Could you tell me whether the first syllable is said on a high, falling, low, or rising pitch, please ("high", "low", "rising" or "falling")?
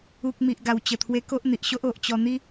low